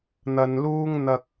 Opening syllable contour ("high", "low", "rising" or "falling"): low